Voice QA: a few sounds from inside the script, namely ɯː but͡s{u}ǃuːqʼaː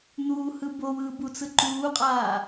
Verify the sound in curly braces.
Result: incorrect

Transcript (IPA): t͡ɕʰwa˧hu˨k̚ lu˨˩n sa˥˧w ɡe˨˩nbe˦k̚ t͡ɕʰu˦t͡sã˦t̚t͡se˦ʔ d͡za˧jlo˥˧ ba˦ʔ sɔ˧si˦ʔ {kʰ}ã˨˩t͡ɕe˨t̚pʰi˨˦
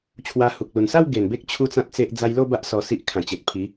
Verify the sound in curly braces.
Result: correct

